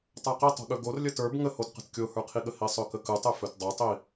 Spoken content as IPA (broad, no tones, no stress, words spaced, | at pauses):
tˤaqitˤo̤ɠɵ ɡor lʲətə˞b ŋəhotqə̤t kʲohə˞qʰiɠə hisˤɵkəkɯtˤ ɵfɵtdˤɵtˤi